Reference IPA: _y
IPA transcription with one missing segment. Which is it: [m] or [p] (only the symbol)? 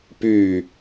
p